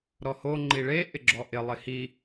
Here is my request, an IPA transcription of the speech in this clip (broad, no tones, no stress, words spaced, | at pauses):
ɾɔho ŋ͡ǃiɭe ʔɪɡ͡ǁɔʔɪ lˠɪhi